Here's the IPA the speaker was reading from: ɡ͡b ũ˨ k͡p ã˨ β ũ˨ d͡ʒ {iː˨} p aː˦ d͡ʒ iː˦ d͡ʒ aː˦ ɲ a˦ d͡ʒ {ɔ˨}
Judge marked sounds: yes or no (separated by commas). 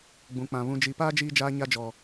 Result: no, yes